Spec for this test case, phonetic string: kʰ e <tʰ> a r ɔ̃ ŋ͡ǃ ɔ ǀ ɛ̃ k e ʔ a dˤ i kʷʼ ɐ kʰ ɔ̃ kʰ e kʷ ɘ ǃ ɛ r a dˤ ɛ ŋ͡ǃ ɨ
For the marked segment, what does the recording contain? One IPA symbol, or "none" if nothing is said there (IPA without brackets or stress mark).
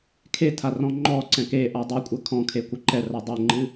tʰ